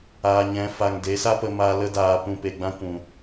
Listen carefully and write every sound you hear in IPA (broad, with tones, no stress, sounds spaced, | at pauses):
aː˨ ɲ ɛ̃˨˦ f a˨ ŋ d e˨˦ s a˦ p ə˧ m a˧ l ə˧ d aː˨ p ũ˨ p e˨ ɡ͡b ã˧ kʷ ũ˨